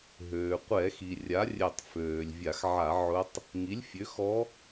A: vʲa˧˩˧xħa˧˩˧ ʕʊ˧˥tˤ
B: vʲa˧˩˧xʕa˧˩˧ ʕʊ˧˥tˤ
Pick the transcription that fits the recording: B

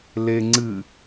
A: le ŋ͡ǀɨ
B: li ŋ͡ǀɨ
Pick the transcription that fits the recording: A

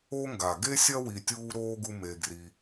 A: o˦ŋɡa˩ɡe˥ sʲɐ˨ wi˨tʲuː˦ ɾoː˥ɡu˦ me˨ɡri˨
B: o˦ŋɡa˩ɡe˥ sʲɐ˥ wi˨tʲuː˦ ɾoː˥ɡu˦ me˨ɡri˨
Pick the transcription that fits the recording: B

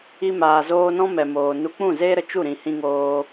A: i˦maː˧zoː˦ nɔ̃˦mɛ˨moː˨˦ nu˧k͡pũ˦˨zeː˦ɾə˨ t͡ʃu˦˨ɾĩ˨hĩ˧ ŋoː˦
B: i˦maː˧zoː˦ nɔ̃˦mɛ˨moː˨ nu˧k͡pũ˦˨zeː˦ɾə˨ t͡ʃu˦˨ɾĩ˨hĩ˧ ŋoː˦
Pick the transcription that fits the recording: B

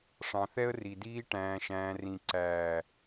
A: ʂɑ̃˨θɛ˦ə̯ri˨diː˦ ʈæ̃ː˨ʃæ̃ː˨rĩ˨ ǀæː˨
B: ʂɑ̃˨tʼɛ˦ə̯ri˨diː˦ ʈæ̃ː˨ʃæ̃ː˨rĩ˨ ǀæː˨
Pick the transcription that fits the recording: A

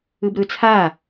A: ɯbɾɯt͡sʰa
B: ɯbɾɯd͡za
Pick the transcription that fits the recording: A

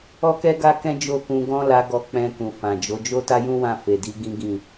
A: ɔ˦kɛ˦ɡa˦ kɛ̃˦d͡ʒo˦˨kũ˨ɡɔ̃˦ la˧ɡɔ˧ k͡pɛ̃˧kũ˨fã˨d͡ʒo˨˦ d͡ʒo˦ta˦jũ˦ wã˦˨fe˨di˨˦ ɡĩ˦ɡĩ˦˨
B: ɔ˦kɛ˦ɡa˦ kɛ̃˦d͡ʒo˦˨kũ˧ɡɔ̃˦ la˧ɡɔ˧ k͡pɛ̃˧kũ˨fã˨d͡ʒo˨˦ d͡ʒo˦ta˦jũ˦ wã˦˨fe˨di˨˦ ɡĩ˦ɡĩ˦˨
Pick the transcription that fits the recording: B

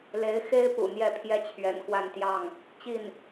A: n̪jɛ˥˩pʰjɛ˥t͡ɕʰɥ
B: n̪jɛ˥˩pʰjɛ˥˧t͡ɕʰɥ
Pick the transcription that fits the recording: A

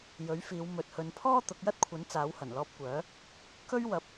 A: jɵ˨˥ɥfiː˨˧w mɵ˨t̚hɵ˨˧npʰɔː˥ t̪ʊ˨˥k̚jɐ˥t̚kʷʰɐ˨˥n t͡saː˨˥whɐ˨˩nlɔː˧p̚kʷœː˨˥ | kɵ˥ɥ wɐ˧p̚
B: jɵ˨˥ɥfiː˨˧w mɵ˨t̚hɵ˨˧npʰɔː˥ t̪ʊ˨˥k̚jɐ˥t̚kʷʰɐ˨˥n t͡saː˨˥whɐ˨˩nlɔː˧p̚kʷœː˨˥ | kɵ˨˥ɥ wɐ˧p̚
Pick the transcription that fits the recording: A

